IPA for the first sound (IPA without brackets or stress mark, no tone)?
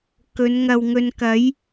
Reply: k